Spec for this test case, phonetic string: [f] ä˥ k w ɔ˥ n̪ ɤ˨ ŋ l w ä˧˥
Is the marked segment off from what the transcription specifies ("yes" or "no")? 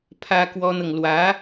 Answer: yes